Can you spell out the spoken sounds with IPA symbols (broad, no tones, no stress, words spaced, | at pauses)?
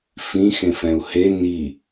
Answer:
fĩxẽfɛ̃u̯ he ni